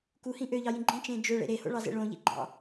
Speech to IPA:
kuhĩ ʔøʎɑjĩ ɡ͡ǃĩt͡ʃẽ d͡ʒøɭḛ ɾeho̰ɭɑzḛ ɭõʎḭɡ͡ǃɑ̰

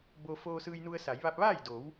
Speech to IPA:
bo˧ foː˧sɯː˧jnu˧ə̯sa˩˧j ʋa˧p̚ʋaː˥˨jdo˩˧w

